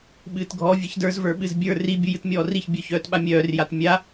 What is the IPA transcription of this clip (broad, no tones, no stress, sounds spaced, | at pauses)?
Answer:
ɓ ɨː t ɡʱ ɔ vʲ ɨ ç d ə˞ z v ə˞ ɓ ɨ z bʲ ə˞ r i bʲ u j ɨ t mʲ ɔː r i ç bʲ œ ç œː t ɓ a mʲ œː r j a t mʲ a